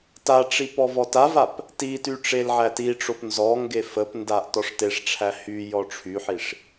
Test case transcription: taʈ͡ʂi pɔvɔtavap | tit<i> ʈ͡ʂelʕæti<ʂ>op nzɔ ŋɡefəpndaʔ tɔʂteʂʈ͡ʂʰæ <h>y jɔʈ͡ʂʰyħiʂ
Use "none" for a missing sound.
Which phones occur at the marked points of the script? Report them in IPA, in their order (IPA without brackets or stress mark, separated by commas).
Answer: y, ʈ͡ʂ, h